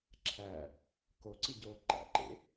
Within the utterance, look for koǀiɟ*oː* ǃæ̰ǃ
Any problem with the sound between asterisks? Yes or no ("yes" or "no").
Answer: no